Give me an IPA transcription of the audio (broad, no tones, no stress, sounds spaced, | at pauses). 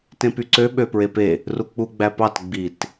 t ẽ p y ǀ ø ɓ ø p ɹ e p e | r u k͡p u ɡ͡b æ p ɑ t ɡ͡b i t